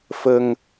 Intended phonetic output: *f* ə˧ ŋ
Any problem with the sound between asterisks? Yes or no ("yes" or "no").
no